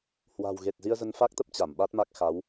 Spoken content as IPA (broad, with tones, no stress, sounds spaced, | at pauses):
h w a̤˨˩ w ɣ e˨˩ t̚ z i˧ ə̯ z ə˧ n f a˦˥ k̚ t̪ ə˦˥ p̚ t͡ɕ a˧˩ m ɓ a˦˥ t̚ m a˦˥ k̚ x a˨˦ w